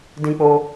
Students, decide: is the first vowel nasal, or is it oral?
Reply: nasal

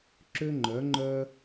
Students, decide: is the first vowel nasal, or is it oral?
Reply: oral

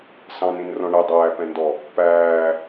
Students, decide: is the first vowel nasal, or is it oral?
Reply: nasal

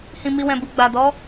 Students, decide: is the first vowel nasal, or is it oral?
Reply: nasal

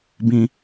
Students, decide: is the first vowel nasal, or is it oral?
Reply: nasal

